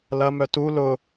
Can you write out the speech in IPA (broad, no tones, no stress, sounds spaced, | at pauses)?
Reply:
l ɐ m œ t u l ʊ